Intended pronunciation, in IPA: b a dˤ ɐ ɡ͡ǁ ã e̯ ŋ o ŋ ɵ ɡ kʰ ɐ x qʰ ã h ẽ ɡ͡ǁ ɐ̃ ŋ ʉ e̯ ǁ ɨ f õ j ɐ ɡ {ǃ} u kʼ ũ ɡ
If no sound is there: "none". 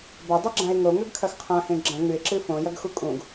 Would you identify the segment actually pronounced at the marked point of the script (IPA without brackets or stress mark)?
x